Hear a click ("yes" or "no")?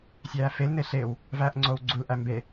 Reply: yes